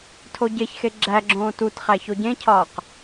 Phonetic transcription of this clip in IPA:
tʰoɟeçxe ɡ͡ǁæɡ͡ǁõː tutχæ çoɟẽcʰɒːq

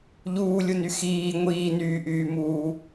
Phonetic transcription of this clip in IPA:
ʎuːlʲuny xiː ŋʷiːnyːʔyːmuː

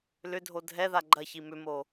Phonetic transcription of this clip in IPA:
lʏdʱo dʱɛða ɡ͡ǃɐçi mʏmo

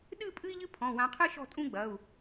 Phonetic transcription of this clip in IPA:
ɗɨ˥˧ pʼɨ˥i̯ʎɨ˥ pʰɔ̃˩˧˩wã˨˦qʰɨ˥ ʃɔ̤˥˧tʼũ˥ɡ͡bɐ˩˧˩u̯

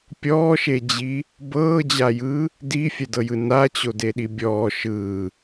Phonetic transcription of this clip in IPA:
pʲɔːʃed͡ʑi | bɤːd͡ʑajɯː | difʲɛdɤjɯ nat͡ɕodeɗi bʲɔː ʃɯː

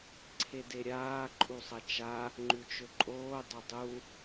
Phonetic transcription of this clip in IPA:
ǀʰedeɾʲaː ǃʼusˤɐt͡ʃa | ŋ͡ǃʉt͡ʃɵǃʼoː dˤɵdˤu

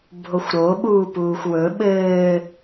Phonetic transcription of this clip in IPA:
bʱoxʷɾoɓuː puːxʷwɵ ɓɘː

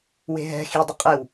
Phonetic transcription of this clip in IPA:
we̤ɦɛ̤ xi dˤɘqʼew

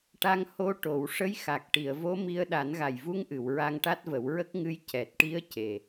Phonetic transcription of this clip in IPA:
ʈa˧ŋ ho˧ʈo˨˩˨w ʂə˧˥jxa˨˩k̚ʈi˨˩˨ə̯ vo˧˥mi˧ə̯ ɗa˨˩˦nɣa˨˩j vu˧ŋʔɨ˨˩˨w ɹa˧ŋʈa˦˥t̚və˨˩˦w ɹə˦˥k̚ŋɨ˧˥j cɛ˨˩t̚ʈi˧˥ə̯ ce˨˩

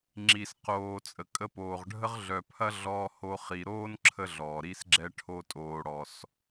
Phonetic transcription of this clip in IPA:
ŋ͡ǁi˨sqoː˨ t͡sʼə˨kʼə˧poː˨ʁɖʱə˦ʁ ɮœ˨pʰɐ˦ɮɔː˧ho˧ χi˨ɾoː˦n ǁʰə˦ɮɔː˨ɾi˦sɡ͡ǁɛ˦ ʈʰo˧ tʼoː˨ɽɔ˨s

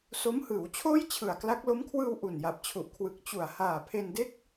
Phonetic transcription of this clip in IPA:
so˦˥mhɯː˩˦wt͡ɕʰoː˥˩j t͡ɕʰɯ˨˩a̯ kla˦˥k̚ lo˦˥mkʰwɯː˧w ʔu˨˩nja˨˩p̚t͡ɕʰu˨˩ʔkʰwɯ˨˩k̚ t͡ɕu˨˩a̯haː˨˩ pʰe˧nde˥˩k̚

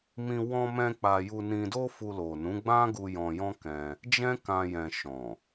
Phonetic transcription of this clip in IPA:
mĩ˧ wɔ̃˧mɛ̃˧ k͡pa˧ ju˧nĩ˧do˦fu˧ lo˨nũ˨˦ ɡ͡bã˦ɡu˧ jɔ̃˧jɔ̃˦kɛ̃˧ | d͡ʒɛ̃˦kã˧jɛ̃˨ ʃɔ̃˨

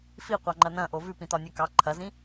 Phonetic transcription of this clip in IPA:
fiqʷɑŋ͡ǃɐ nɐ̃ʔo vʉpĩtɒnʲʉ kɑ ǃʰɐzĩ

